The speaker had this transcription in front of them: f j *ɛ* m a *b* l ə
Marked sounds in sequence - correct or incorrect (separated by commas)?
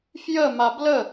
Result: incorrect, correct